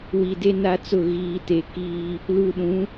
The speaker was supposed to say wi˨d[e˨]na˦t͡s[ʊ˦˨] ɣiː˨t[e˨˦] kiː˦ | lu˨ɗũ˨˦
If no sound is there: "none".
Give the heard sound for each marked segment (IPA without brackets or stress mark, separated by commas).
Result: e˦, ʊ˦˨, e˨˦